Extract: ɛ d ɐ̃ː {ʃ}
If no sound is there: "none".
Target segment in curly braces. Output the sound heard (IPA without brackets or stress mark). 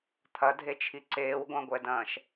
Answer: ʃ